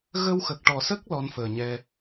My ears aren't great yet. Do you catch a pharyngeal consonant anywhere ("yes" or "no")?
no